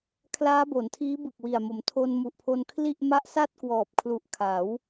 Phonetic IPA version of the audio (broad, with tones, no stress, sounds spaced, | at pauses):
kʰ l aː˦˥ b o˩˦ n tʰ iː˦˥ b ɯ˨˩ k̚ w i˨˩ a̯ m o˩˦ m tʰ o˧ n m u˨˩ ʔ pʰ o˧ n kʰ l i˥˩ ʔ m a˦˥ ʔ s a˥˩ t̚ k w ɔː˨˩ p̚ kʰ l u˨˩ ʔ kʰ a˩˦ w